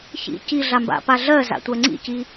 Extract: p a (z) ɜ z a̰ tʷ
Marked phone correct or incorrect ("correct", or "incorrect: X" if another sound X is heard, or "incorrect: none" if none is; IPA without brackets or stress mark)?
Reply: incorrect: ɮ